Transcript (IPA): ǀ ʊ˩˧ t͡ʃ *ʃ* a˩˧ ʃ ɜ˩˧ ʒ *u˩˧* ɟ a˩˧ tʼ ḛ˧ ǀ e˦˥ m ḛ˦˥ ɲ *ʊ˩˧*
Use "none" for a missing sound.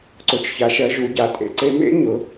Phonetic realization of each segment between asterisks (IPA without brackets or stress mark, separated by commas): ç, u˩˧, ʊ˩˧